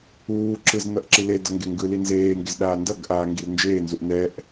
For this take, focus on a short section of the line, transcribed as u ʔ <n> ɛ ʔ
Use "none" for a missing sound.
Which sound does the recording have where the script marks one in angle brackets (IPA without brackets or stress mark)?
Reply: n